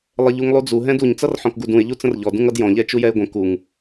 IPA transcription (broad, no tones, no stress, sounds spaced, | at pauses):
lˠ ə ʎ u ŋ lˠ u d͡z u ɦ ɛ̃ d u ɲ t͡s ʌ r ħ ɔ̃ k ɡ u d ũ ɪ̯ ʎ u t͡s ə̃ r ʎ ɔ d ũ ŋ ʌ d j ɔ̃ ʎ ɛ t͡ʃ u j ɛ ɪ̯ ɡʷ ə̃ k u ŋ